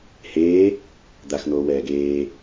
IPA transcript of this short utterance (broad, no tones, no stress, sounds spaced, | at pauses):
h eː | d̪ a x n̪ oː w ɛː ɡ eː